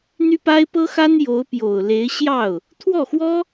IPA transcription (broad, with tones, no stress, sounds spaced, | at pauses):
n̪ y˥ p a˥ ɪ̯ p ɤ˥ x a˥ n j o˧˥ ʊ̯ p j o˨˩ ʊ̯ l e˧˥ ɪ̯ ɕ j ɑ˥˩ ʊ̯ | t̪ʰ w ɔ˥˩ x w ɔ˥